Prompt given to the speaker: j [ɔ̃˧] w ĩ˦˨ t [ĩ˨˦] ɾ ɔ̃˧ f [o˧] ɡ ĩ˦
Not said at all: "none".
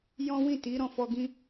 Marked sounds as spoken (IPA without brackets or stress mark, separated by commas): ɔ̃˦, i˨˦, ɔ˧